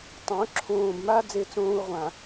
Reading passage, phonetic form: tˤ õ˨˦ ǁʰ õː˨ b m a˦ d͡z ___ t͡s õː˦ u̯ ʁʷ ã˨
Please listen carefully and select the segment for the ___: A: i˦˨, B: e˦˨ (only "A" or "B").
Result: B